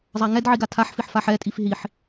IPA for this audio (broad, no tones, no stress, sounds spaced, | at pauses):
zˤ a ŋ ɛ d ʕ i ɡ a tʰ a ħ f i ħ f a ħ ɛ tʼ i f ɦ i ħ